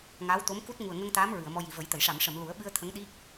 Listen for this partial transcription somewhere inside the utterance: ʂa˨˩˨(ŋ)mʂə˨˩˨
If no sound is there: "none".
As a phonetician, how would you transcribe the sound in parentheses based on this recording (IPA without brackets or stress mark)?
none